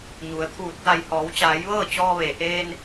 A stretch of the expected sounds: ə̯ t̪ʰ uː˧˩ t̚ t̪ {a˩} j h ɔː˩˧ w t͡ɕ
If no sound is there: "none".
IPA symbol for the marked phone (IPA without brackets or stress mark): a˧˩